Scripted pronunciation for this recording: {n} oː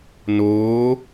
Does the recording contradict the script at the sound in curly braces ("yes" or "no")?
no